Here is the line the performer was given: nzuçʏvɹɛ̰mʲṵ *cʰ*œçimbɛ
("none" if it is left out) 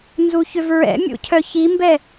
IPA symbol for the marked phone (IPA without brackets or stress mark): cʰ